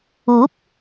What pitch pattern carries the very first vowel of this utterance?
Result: rising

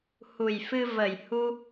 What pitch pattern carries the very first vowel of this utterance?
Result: low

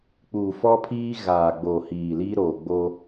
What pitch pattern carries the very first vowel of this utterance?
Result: low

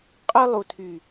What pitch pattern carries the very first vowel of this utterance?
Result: high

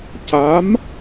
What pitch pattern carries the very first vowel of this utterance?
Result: rising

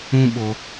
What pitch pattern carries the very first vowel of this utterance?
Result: high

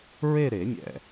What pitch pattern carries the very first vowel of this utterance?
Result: falling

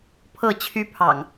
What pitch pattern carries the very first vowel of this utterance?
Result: falling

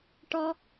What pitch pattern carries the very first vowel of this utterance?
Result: high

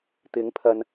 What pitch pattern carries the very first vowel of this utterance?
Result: rising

